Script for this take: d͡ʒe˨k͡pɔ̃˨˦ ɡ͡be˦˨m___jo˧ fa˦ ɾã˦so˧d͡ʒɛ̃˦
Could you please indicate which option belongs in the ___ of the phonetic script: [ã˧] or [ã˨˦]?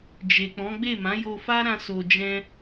ã˨˦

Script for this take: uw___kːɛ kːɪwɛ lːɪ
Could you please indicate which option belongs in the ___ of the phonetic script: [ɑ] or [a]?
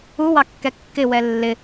ɑ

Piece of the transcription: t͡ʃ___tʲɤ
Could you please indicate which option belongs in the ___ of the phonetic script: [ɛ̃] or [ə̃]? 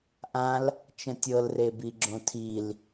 ə̃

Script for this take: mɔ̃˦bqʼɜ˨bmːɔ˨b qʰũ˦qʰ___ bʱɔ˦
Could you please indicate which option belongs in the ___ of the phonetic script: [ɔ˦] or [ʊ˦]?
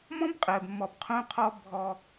ɔ˦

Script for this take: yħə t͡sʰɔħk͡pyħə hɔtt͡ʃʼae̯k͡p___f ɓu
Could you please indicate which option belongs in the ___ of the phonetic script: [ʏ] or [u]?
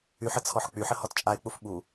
u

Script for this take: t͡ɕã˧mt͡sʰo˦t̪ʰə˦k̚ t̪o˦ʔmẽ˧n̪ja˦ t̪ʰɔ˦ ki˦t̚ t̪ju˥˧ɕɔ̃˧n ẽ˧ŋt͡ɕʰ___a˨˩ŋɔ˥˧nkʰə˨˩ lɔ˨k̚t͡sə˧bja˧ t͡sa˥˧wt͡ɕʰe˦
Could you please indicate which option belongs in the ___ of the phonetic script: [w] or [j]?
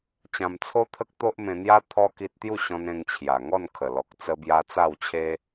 j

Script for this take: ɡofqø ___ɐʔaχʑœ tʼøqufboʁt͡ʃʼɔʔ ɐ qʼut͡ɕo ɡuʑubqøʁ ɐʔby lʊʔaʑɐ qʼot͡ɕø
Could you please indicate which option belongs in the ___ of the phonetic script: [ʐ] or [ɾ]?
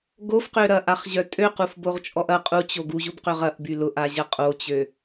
ɾ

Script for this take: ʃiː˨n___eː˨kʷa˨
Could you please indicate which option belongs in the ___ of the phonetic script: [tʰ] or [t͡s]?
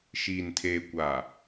tʰ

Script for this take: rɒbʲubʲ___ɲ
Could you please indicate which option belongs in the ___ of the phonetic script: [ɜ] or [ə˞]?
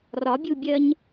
ɜ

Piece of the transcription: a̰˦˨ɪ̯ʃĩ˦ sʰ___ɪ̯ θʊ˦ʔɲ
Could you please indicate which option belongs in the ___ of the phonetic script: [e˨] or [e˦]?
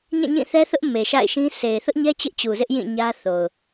e˨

